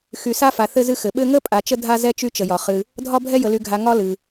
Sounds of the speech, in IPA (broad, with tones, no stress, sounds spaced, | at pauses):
x y˧ s a˥ f a˧ θ ɘ˥ z ɨ˥ x ɘ˧ ɓ ɘ˥ ŋ ə˥ pʼ a˧ t͡ʃ ə˥ dʱ a˥ z ɛ˥ t͡ʃ y˥ t͡ʃ ə˧ j ɒ˧ χ ɨ˧ | dʱ ɒ˥ bʱ ɛ˥ j ə˧ l y˧ ɡʱ a˧ ŋ ɒ˥ l ɨ˧